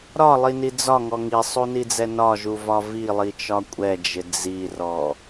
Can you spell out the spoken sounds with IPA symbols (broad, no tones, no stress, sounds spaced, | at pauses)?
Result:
ɾ ɒ lˠ i n i d͡z ɒ ŋ ɔ ŋ i sˤ u n i d͡z ɛ n ɒ ʒ u v ɒ v i lˠ i t͡ʃ ɒ kʷʼ ɛ d͡ʒ ɪ d͡z i r ɔ